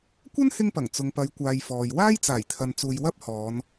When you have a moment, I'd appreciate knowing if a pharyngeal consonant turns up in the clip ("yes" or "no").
no